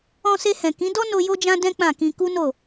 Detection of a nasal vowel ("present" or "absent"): present